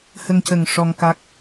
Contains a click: no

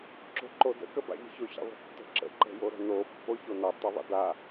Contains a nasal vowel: no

